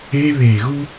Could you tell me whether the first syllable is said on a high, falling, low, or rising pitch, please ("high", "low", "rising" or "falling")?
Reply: high